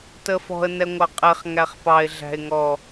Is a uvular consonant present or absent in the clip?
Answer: present